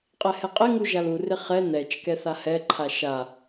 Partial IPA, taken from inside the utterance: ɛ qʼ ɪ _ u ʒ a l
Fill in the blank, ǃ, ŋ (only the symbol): ŋ